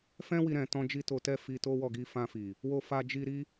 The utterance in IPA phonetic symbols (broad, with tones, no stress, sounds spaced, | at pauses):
f ɛ̃˦ w i˧ ɾ ɛ̃˧ t ɔ̃˦ d͡ʒ i˦ t o˧ t ɛ˦ f i˧ t o˦ w ɔ˦˨ ɡ i˧ f ã˧ f i˨ | w o˧ f a˧ d͡ʒ i˧ ɾ i˦